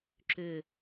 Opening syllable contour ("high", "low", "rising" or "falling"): low